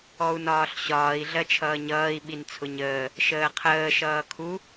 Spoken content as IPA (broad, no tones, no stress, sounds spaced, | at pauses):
ɔ u̯ n ɒː ɬ ɕ ɒː i̯ ɮ ɜ t͡ʃʰ ʌː ɲ ʌː i̯ ɓ i n t͡sʰ ʊ ɲ əː | ʃ əː qʰ əː ʃ ʌː kʰ u